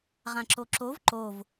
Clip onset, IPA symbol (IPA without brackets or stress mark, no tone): ʁ